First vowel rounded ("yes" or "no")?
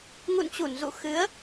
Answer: yes